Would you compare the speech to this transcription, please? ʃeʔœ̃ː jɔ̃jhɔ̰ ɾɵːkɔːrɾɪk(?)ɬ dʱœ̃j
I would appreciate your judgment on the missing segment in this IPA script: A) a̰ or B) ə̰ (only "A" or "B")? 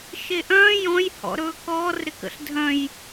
B